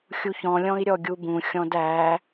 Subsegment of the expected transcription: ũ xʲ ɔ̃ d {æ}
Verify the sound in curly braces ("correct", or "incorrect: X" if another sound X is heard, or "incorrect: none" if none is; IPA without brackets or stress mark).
correct